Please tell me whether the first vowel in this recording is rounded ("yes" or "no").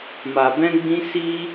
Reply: no